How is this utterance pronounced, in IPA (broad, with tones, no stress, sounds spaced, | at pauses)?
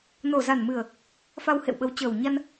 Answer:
n o˨˩ z a˨˩ n m ɨ˨˩ ə̯ | f a˧ w h ḛ˧˨ w ɓ ə˨˦ w t͡ɕ əː˨˩ w ɲ a˧ n